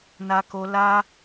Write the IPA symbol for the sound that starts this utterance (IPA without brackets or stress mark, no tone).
n